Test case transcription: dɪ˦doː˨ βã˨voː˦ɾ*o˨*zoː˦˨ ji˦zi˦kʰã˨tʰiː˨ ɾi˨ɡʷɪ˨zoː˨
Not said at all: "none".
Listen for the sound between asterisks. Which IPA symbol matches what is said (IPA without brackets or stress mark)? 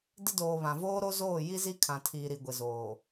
o˦